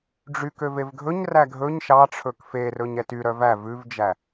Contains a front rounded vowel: yes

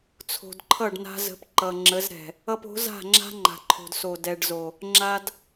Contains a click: yes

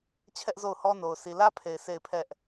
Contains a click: no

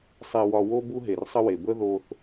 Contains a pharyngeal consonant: no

